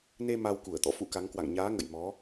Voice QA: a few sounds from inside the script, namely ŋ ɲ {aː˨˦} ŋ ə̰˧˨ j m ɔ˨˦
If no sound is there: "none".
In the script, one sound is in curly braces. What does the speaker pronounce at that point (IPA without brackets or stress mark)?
aː˨˦